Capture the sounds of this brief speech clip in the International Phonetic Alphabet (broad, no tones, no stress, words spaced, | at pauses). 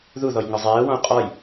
ðuðɔj ŋɒzˤɛːwɔ̃u̯ qʼɒj